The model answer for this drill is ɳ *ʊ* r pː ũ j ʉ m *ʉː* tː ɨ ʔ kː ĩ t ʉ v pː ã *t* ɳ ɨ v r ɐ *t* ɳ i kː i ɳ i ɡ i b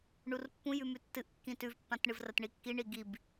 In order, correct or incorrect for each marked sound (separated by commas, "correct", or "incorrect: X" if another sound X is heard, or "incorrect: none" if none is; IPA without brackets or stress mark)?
incorrect: u, incorrect: ʉ, correct, correct